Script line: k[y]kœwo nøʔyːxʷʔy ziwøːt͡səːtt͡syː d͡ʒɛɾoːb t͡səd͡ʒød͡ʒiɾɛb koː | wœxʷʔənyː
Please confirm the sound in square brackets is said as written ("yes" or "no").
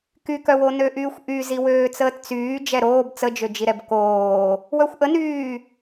yes